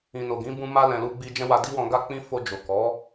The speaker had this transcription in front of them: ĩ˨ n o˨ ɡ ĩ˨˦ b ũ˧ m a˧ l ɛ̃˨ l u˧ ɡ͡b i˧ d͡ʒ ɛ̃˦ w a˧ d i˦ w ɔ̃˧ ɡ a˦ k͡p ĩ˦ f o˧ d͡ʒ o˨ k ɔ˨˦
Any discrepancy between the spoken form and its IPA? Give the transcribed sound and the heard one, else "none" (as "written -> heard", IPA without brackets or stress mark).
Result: none